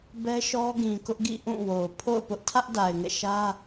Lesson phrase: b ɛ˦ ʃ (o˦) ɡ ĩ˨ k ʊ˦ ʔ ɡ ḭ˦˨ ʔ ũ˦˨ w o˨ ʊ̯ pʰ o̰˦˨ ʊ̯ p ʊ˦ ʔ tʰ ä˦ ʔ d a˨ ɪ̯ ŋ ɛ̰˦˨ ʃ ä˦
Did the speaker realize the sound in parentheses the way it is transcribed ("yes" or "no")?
no